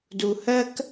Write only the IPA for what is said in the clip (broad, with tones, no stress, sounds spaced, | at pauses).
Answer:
d u˧ h ɜ˥ k